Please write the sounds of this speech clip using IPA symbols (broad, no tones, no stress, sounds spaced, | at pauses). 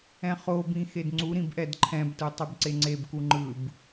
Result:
ɛ̃ χ o b ĩ x e d ŋ͡ǀ u ɾ ĩ b ʔ ɛ d ǃʰ ɛ̃ b t ɯ tˤ ɯ b ǀ e ŋ͡ǀ e b k u ŋ͡ǃ ɯ b